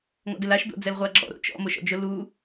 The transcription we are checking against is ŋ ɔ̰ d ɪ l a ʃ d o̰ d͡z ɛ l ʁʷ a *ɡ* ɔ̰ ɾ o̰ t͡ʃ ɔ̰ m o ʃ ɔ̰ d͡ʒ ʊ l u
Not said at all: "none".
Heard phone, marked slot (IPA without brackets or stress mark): ɡ͡ǁ